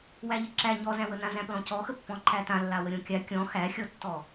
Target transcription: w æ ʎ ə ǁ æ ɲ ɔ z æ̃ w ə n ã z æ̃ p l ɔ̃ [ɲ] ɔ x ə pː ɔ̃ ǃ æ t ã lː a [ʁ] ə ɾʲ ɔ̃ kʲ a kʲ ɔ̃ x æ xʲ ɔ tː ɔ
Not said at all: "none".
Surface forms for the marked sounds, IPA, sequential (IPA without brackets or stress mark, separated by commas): c, w